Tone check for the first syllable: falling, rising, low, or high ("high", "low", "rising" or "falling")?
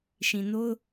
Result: low